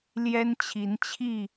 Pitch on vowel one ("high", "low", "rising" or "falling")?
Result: high